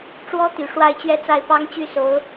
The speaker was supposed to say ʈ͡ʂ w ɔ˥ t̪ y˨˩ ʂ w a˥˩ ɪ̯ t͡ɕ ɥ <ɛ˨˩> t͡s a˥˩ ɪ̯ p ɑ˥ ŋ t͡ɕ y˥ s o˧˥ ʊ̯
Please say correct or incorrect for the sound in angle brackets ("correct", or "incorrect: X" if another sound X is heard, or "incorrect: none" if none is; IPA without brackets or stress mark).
incorrect: ɛ˥